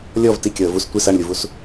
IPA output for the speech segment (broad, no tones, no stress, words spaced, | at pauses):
lʲɔv tikʲɔə̯ vus tʷis aɳlʲuvus